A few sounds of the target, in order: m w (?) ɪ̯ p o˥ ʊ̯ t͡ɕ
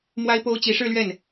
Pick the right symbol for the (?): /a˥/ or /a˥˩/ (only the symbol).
a˥